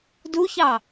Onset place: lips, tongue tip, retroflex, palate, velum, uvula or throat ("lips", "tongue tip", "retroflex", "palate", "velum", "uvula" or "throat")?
tongue tip